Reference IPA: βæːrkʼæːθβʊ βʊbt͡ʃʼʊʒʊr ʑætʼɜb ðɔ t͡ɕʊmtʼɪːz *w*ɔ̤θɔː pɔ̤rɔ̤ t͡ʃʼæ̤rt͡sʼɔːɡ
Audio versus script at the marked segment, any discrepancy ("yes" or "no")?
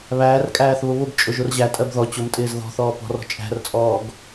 yes